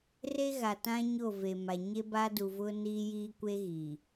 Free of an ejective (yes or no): yes